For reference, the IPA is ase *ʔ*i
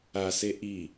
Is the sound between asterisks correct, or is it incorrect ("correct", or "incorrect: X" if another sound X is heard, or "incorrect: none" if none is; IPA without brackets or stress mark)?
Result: correct